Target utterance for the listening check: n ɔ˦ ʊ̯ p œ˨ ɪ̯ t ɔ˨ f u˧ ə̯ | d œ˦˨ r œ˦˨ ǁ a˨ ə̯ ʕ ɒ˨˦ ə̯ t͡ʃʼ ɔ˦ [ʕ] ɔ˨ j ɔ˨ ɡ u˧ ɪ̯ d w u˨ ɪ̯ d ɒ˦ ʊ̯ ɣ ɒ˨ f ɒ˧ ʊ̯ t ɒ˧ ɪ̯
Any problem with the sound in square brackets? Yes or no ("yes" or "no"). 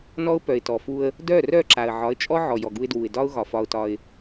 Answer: no